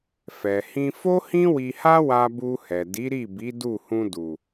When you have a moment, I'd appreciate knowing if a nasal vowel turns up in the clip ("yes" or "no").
yes